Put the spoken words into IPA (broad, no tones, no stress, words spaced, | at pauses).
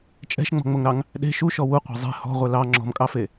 t͡ʃʼɛ̤ʃŋ͡mɔ̤ŋ͡moŋɾɑŋ | ɗe̤ ʃuʃɔ wuqʷe̤ zˤe̤ hɔ̤ʁʷɛ lɑ ŋ͡ǁɔ̤mkʼɑfe